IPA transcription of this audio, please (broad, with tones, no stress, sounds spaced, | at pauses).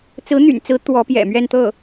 t͡s ɹ̩˧˥ n̪ y̰˨˩ n t͡s ɹ̩˧˥ t̪ w ɔ˧˥ p j ɛ̰˨˩ m ɥ ɛ˥˧ n t̪ ɤ˥˩